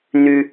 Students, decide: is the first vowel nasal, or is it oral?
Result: oral